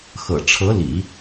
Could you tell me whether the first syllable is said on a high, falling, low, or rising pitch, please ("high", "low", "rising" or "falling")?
low